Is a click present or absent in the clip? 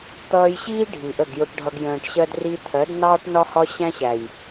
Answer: absent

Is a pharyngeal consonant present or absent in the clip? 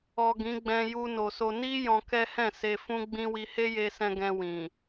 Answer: absent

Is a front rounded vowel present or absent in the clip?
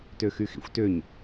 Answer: present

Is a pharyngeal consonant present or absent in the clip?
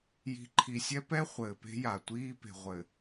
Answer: absent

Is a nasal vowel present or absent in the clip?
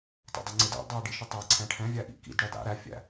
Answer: present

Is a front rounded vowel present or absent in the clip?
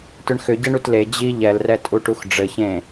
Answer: present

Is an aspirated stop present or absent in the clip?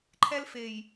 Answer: present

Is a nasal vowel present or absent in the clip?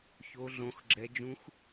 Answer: present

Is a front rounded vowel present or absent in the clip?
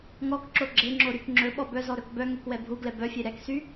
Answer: present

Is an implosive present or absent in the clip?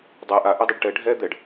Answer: absent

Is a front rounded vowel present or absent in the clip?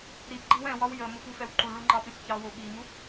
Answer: absent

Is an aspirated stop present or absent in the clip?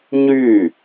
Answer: absent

